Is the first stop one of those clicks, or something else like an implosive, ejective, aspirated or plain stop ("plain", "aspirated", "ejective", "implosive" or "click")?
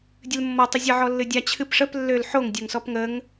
plain